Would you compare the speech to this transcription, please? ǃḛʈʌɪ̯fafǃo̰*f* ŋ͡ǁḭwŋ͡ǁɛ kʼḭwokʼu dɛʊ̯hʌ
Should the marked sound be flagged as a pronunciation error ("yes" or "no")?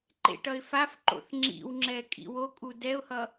yes